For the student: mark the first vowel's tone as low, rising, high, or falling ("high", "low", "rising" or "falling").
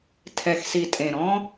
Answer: low